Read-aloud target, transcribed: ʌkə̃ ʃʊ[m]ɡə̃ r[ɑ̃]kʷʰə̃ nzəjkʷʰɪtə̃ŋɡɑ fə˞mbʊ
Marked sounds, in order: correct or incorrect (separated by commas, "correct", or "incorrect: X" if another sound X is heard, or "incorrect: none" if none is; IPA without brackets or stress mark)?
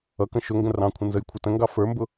incorrect: ŋ, correct